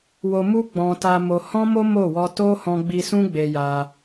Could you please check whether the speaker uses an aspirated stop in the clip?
no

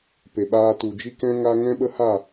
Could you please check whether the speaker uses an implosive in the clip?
yes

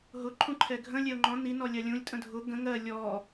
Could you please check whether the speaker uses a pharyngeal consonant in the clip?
no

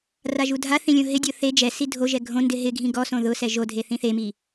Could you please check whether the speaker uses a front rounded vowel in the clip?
no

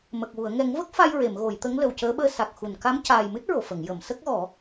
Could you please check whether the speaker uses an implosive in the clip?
yes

